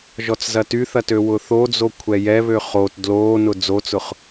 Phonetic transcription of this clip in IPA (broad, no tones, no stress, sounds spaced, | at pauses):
ʒ ɔ t͡s z ɐ t y θ ɐ t ø w ʊ θ o d͡z o kʷʰ ɛ j ɛ β ø χ o t d l oː n ʊ d͡z o t͡s ʊ χ